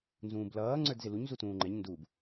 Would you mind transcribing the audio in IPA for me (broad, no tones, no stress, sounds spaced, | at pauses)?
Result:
n z ũː b l ʌː ŋ͡ǀ ə˞ d z ɪ l u ɲ z u t ũː ŋ͡ǃ ɛ ɲ n d u b